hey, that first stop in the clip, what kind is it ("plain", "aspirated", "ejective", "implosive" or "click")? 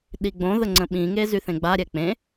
implosive